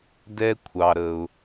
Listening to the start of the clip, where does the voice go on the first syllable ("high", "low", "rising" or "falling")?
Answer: high